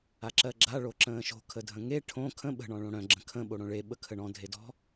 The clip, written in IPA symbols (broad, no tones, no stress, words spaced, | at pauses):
aǁɜɡ͡ǁa ɭoǁə̃ːʃo̤ kʰədʱə̃ŋe ʈʰõ kʰə̃ ɓə̤ ɳɔ̃ɭõɽœ̃ ɡ͡ǁə̃kʰə̃ ɓoɽõɭe ɓəkʰəɳɔ̃ dʱedɔ̤